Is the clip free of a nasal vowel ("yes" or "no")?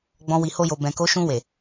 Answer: no